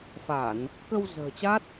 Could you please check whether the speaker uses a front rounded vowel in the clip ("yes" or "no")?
no